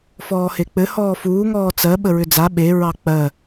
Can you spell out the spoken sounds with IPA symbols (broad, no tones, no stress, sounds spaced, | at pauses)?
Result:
f ɔː h e k͡p ɘ h ɔː f uː ŋ ɔː t͡s ɜ ɓ ə ɹ ʏ d͡z a ɓ e ɹ ɑ k͡p ɜ